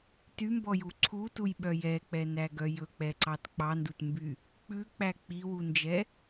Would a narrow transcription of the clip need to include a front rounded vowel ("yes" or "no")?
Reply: yes